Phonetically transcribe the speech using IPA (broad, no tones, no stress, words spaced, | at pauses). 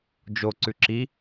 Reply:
d͡ʒo ǀʉǁi